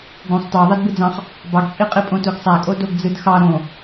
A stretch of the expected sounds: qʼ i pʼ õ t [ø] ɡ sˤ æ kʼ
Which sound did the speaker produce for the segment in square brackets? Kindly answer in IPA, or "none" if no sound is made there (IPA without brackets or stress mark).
ø